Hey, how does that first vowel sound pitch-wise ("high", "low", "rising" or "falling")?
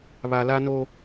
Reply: low